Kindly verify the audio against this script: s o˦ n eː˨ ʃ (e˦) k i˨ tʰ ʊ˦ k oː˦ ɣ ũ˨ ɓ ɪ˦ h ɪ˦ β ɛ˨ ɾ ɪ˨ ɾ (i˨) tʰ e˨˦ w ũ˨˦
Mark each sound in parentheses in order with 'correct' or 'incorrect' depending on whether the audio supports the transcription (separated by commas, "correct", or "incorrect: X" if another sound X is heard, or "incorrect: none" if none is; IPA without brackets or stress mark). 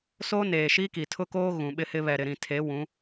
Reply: incorrect: i˦, incorrect: ĩ˨